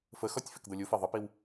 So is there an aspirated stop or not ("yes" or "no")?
no